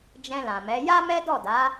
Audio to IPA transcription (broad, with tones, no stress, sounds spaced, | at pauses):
d͡ʒ ɛ̃˧ l ã˨ m ɛ˨˦ j a˦ m ɛ˦ d ɔ˦˨ d a˨˦